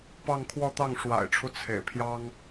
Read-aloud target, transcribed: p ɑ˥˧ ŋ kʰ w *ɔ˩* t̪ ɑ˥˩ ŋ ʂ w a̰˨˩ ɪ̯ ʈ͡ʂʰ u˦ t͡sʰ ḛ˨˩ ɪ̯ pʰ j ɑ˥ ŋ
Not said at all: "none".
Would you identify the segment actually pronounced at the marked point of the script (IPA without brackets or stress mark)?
ɔ˥˧